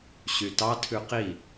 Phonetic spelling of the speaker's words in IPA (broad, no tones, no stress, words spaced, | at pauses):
ɕytɑtʰʉ qi